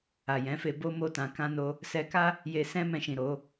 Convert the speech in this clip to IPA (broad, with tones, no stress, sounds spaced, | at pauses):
a˨ j ɛ̃˨˦ f e˧ b o˦ m o˦ t ã˧ k ã˧ n o˧ | s ɛ˧ k a˦ | j e˧ s ɛ̃˦ m ɛ̃˧ ʃ ĩ˨ ɾ o˨˦